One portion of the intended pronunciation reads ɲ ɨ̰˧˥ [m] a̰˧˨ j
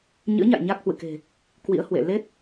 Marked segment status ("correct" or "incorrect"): incorrect